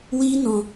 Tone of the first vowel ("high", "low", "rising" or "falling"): high